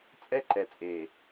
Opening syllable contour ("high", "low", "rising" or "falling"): high